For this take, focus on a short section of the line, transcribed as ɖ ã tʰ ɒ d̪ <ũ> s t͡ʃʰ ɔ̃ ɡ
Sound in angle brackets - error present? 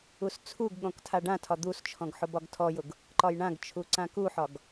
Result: yes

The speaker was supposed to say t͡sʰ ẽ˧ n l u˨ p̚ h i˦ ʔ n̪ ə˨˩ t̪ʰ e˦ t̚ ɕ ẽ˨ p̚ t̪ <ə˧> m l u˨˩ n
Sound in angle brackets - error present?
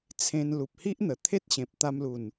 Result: yes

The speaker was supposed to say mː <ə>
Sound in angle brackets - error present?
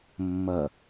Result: yes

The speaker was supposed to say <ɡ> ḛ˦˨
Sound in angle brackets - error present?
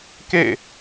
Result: yes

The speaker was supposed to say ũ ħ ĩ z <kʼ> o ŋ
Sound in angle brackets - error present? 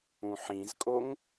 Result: no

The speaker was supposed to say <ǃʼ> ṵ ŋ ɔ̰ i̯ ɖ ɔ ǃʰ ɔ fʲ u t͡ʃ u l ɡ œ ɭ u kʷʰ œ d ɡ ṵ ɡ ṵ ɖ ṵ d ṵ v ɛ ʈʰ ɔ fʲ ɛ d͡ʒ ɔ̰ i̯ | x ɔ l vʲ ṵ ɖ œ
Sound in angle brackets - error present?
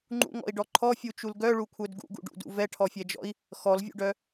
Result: yes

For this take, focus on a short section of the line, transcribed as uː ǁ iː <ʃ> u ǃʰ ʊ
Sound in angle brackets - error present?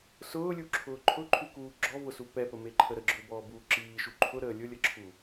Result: no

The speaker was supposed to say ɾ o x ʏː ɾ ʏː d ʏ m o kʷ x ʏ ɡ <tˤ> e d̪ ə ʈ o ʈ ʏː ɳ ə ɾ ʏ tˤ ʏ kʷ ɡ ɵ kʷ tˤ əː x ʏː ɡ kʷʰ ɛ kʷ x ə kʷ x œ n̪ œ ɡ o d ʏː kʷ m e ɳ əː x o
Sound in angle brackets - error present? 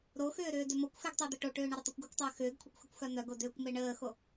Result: no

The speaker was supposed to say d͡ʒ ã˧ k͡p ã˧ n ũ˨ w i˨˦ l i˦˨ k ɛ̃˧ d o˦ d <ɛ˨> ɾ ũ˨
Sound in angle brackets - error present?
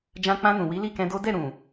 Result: yes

